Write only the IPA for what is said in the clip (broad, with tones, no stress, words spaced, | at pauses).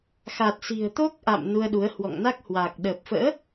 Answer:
xa˨˩t̚si̤˨˩ə̯t̪o˦˥k̚ʔa̰˧˨m nu˧ə̯ɗu˨˦ə̯ hwɔ̰˧˨ŋna˦˥k̚hwaː˨˩k̚ ɗə˨˩p̚fə̰ː˧˥